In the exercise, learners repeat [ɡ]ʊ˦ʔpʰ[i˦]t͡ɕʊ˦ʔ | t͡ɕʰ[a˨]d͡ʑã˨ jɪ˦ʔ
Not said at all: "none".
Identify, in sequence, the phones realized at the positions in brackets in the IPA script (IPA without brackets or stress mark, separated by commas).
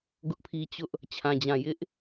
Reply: ɡ, i˦, ã˨